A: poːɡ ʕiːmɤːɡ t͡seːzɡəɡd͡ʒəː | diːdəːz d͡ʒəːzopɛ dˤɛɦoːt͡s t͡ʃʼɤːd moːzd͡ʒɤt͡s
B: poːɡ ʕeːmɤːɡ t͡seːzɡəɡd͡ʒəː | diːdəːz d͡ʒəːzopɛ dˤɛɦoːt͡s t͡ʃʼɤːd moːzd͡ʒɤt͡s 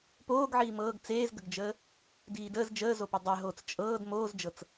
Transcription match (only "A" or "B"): A